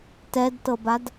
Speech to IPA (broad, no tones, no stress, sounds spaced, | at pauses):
t ɛ d t ɤ b a d